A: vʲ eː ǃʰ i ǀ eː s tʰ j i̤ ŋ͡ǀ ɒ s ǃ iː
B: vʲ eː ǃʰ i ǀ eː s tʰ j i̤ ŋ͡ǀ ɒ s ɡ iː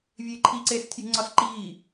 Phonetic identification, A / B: A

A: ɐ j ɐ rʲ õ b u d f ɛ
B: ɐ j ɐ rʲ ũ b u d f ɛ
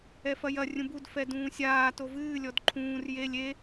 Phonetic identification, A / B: B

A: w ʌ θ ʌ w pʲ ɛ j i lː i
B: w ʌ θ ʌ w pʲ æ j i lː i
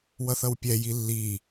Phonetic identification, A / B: A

